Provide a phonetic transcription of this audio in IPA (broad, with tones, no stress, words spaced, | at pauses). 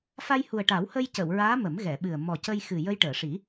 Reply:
fa˧jhu˨˩ə̯ʈa˨˩˦whə˧j cə˨˩˨wɹaː˧˥ mə˨˩˦mɣɛ˨˩˨ɓɨ˨˩ə̯ mɔ˨˩cə˧jxɨ˨˩ jə˧jʈəː˨˩˨ʂi˨˩˦